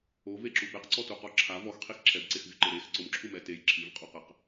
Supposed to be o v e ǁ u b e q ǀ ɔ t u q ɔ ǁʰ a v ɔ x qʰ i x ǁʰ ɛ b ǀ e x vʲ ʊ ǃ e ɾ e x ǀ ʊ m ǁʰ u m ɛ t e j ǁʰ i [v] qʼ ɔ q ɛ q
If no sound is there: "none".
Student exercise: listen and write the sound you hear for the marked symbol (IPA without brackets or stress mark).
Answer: v